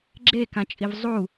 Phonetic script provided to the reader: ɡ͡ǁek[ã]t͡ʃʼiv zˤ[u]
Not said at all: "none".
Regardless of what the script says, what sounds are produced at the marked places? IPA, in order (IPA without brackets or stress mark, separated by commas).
ã, u